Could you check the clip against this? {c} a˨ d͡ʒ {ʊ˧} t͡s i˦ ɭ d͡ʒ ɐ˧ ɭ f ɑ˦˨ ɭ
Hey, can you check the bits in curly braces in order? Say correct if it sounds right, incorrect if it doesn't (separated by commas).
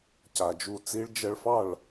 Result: correct, incorrect